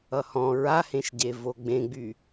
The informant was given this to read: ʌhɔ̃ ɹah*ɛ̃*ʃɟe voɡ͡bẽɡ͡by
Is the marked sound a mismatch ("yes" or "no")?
yes